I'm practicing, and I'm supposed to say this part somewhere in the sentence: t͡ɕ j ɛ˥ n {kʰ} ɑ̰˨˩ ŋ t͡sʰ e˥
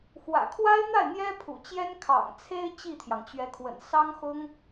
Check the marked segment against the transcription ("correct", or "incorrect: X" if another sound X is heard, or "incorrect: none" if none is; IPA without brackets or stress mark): correct